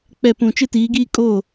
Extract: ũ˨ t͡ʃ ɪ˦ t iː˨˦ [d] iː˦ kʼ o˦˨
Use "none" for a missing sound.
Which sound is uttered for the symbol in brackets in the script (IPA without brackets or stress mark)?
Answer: ɡ